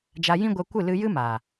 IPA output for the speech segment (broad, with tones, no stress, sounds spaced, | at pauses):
d͡ʒ a˧ j ĩ˦ ɡʷ ɛ˧ kʷ ɨ˦˨ l ɨ˧ j ɨ˦ m a˨